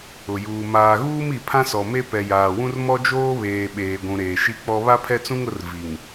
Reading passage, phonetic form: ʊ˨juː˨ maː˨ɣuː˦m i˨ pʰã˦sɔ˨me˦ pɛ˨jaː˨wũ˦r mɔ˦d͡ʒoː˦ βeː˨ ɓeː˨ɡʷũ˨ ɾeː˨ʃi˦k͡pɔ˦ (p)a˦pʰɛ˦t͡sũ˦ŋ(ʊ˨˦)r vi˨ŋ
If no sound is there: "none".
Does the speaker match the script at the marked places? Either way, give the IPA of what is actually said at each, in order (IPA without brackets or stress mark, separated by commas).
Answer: β, ʊ˨˦